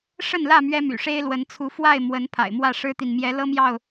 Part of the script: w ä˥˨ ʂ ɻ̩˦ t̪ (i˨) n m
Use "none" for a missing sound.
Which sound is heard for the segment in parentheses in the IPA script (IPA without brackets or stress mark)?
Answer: i˨